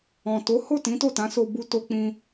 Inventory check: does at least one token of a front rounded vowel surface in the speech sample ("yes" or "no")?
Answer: no